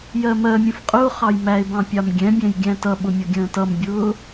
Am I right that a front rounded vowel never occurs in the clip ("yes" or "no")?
yes